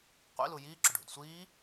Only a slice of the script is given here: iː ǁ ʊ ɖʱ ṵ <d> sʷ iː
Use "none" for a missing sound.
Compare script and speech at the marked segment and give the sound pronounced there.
d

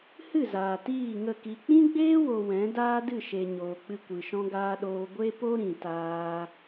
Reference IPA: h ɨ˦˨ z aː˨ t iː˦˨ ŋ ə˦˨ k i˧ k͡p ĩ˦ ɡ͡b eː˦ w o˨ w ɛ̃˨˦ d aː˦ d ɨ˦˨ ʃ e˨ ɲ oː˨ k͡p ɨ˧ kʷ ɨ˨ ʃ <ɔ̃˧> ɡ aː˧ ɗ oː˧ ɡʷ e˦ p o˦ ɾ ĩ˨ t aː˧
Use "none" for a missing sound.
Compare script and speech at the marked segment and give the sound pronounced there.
ɔ̃˧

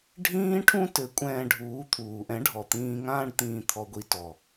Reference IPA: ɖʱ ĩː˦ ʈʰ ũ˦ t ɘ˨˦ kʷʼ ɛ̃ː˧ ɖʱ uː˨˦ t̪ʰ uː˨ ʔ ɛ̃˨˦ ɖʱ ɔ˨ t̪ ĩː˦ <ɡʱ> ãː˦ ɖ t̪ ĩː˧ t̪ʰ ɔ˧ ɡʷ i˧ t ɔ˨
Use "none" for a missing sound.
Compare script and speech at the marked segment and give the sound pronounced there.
ŋ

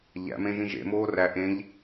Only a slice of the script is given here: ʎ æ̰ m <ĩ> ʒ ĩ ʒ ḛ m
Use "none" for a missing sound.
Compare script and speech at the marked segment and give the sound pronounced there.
ẽ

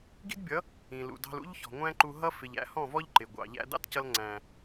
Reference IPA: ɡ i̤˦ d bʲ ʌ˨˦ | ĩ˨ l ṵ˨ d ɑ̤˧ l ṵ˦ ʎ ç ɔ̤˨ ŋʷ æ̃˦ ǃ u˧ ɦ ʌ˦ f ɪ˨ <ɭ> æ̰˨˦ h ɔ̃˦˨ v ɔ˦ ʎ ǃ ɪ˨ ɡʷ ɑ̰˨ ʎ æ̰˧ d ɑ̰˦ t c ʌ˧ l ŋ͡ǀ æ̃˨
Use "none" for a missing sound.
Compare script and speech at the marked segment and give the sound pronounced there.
ʎ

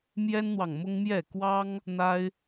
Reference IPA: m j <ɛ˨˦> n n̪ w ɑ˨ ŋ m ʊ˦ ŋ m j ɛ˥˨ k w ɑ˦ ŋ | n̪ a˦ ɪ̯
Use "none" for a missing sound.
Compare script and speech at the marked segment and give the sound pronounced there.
ɛ˦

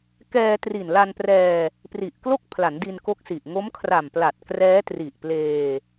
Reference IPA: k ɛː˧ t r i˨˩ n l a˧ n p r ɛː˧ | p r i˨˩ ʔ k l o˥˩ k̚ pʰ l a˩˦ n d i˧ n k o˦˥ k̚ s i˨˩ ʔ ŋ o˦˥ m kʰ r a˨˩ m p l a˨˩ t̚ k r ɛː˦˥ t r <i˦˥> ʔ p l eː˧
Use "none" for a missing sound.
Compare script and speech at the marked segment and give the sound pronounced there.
i˨˩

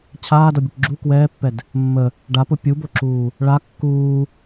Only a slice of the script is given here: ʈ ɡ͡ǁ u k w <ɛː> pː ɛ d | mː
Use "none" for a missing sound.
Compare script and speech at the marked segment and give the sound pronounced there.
ɛː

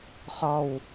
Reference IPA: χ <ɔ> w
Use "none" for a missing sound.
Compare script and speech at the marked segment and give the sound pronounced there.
ɔ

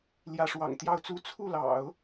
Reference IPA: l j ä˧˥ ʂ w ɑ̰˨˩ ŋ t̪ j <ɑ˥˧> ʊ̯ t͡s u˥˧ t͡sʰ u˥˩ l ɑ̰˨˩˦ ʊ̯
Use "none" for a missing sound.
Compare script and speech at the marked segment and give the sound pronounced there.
ɑ˥˧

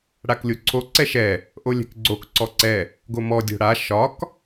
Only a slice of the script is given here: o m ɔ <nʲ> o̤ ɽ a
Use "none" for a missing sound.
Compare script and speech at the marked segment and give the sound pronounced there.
dʲ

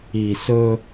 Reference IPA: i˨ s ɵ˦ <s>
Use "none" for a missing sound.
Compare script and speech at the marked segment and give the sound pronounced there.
none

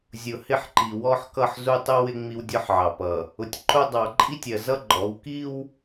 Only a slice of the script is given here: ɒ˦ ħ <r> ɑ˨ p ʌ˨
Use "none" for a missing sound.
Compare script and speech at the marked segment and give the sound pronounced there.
ʕ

